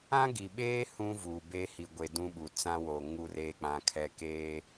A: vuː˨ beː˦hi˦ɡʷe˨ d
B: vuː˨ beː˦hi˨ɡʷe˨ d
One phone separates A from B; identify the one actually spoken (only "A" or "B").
B